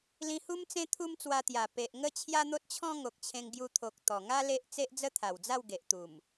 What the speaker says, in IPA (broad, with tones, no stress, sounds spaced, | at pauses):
l ĩ˧ h u˦ m t͡s ẽ˦ t̪ʰ u˦ m t͡s w a˧ t̪ j a˨˩ p e˨ ʔ ŋ ə˥˧ t͡ɕʰ j a˦ n̪ o˦ t̚ t͡ɕʰ ɔ̃˦ ŋ o˨ k̚ t͡ɕʰ ẽ˧ ŋ ɡ j u˧ t̪ʰ o˨ k̚ t̪ ɔ˨˩ ŋ a˦ l e˦ ʔ t͡s e˦ ʔ d͡z ə˦ t̪ʰ a˨˩ w d͡z a˥˧ w ɡ e˨ ʔ t̪ u˨˩ m